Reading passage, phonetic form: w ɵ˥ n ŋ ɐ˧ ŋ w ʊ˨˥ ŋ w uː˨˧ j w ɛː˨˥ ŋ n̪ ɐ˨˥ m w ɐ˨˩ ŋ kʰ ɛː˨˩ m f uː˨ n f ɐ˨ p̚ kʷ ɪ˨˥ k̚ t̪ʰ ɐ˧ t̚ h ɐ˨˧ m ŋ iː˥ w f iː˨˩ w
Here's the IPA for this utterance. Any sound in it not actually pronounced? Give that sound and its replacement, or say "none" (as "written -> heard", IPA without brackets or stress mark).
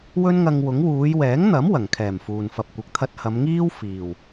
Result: none